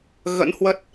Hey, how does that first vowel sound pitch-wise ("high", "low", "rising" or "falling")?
rising